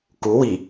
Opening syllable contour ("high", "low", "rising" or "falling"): rising